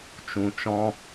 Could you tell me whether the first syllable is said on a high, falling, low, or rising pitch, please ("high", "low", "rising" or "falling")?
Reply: low